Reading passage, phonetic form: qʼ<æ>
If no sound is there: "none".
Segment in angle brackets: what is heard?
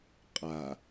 a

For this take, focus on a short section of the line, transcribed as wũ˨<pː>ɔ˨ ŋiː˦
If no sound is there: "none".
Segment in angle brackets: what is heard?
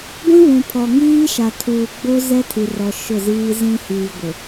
pʰ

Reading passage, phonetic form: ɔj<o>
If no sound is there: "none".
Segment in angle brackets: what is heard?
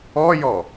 ɔ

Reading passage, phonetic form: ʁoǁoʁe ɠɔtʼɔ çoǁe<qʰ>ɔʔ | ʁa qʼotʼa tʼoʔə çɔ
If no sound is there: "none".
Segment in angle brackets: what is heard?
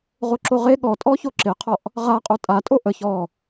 qʰ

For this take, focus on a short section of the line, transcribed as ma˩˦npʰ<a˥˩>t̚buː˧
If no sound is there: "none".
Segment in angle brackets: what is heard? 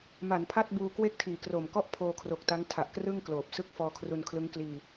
a˥˩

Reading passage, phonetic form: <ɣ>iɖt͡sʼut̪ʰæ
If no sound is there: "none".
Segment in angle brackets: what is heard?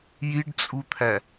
j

